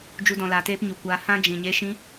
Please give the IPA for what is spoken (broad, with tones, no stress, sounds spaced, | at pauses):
d͡ʒ u˦ d ɔ̃˧ l aː˧ t eː˦ p ɲ u˨ kʷ aː˧ h ã˦ d͡ʒ ĩ˨ ɲ e˧ ʃ ĩ˧